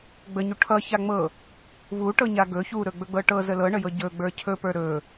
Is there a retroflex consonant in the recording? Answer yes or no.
yes